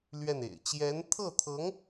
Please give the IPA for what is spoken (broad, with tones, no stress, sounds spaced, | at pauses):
l ɥ ɛ˥˩ n ḛ˨˩ ɪ̯ t͡ɕ j ɛ˧˥ n t̪ʰ ɤ˥˩ t̪ʰ ɤ˧˥ ŋ